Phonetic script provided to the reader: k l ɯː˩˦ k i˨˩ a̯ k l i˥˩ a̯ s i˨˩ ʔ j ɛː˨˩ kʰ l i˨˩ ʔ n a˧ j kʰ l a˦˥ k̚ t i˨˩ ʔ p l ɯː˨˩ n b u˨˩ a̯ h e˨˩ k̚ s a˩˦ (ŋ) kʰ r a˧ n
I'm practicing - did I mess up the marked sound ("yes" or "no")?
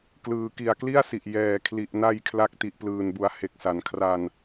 yes